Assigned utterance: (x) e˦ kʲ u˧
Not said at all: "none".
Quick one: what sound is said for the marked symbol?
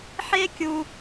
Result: ħ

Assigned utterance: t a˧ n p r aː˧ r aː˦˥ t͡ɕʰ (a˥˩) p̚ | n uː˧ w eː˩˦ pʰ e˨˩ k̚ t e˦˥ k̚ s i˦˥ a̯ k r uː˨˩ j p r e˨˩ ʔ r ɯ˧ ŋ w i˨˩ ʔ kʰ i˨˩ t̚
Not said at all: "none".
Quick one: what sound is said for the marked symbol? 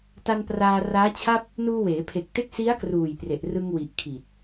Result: a˥˩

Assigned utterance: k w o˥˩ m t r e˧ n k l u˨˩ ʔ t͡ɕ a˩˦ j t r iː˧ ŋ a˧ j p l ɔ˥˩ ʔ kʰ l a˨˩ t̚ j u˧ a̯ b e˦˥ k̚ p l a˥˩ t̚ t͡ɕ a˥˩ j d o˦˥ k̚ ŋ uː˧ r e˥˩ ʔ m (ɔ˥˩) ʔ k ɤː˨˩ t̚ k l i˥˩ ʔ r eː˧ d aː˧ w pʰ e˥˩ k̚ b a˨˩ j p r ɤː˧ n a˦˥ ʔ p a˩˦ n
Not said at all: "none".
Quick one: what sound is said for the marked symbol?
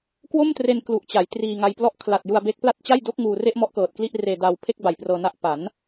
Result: ɔ˦˥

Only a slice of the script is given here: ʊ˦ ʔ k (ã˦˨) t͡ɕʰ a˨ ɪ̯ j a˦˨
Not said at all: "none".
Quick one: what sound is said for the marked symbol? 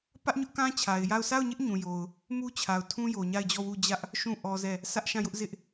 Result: ã˦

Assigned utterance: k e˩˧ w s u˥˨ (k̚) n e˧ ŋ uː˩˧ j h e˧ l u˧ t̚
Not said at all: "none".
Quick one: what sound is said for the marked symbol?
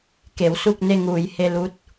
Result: k̚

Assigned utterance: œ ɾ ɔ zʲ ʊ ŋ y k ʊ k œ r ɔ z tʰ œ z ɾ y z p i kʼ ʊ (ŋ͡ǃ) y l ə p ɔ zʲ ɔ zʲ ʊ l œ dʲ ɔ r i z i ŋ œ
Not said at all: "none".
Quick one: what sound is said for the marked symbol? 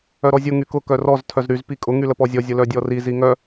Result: ŋ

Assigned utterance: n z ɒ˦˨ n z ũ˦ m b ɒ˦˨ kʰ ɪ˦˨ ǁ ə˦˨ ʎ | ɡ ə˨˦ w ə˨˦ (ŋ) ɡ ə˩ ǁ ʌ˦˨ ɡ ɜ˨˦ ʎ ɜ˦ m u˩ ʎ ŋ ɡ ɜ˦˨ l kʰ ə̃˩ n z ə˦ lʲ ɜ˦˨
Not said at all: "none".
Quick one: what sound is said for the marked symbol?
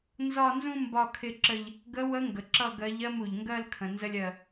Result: ŋ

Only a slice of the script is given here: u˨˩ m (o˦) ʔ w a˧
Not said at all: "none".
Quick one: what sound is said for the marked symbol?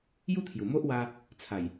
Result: o˦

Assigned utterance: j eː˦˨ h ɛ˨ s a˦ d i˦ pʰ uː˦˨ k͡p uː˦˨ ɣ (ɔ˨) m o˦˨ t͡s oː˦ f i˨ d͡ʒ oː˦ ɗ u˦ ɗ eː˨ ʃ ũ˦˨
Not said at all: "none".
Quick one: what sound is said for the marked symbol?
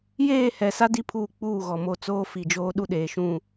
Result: ɔ˨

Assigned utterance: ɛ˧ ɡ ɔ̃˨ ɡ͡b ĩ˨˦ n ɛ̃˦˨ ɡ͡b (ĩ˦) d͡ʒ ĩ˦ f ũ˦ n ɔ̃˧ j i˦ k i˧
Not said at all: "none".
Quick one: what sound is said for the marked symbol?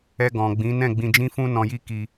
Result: ĩ˧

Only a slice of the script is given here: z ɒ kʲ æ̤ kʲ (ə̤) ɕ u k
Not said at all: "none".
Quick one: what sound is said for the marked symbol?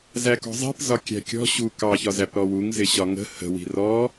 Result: ɔ̤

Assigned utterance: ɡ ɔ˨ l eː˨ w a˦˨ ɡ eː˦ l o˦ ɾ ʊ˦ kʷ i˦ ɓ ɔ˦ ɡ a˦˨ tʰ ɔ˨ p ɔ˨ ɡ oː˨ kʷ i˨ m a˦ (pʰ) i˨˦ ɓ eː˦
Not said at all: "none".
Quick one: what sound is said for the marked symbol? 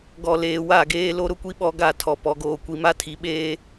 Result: tʰ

